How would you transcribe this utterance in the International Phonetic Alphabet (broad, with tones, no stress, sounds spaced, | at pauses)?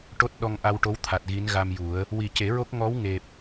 ʈ o˦˥ t̚ ɗ ɔ˧ ŋ ʔ a˧ w ʈ o˧˥ w t̪ʰ a˨˩ t̚ ɣ i˧˥ n ɣ a˧ m j u˨˩˦ ə̯ | w i˨˩ c e˨˩˦ ɹ o˦˥ k̚ ŋ ɔ˧˥ w ŋ e˨˩ p̚